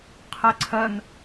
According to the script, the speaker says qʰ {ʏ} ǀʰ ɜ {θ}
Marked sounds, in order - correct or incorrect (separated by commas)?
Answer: incorrect, incorrect